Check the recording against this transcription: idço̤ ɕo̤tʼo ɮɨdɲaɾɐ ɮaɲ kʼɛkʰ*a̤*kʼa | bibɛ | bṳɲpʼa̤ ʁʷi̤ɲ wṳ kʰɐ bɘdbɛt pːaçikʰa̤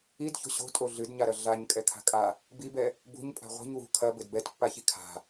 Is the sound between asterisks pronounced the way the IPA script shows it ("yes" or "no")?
yes